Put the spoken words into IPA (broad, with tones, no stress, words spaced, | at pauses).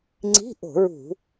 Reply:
ŋ͡ǀi̤˧˥˧ʔo̤˧˩˧ɹṳ˧˩˧